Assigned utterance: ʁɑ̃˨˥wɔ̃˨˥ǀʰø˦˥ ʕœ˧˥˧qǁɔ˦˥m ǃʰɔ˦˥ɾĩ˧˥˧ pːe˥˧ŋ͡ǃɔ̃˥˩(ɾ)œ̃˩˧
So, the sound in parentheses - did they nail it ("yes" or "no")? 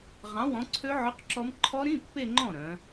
yes